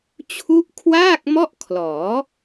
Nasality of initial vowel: oral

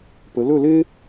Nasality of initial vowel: oral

